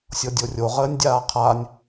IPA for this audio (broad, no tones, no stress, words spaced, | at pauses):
sʲɤdʲorʲoʁəːnʲ dʲaːqʰanʲ